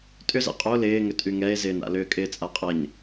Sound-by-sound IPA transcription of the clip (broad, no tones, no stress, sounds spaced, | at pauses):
tʼ ʏ z ɛ̰ qʼ o l ɪː ŋ ʏ tʼ y ŋ ɛ e̯ z ɪː n a̰ l ʏː kʼ ɪː t͡sʼ a qʼ ɐ ɲ